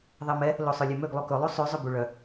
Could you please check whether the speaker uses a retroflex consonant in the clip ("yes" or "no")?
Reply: yes